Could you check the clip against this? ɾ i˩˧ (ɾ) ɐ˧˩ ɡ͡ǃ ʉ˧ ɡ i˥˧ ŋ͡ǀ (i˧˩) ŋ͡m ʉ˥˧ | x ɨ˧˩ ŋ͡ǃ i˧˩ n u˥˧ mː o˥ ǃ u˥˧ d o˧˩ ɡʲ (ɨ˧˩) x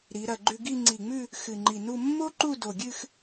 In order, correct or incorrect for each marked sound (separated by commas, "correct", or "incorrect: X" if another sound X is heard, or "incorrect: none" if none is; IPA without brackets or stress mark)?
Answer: correct, correct, incorrect: ɨ˥˧